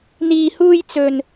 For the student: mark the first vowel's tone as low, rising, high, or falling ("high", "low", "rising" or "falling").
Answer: low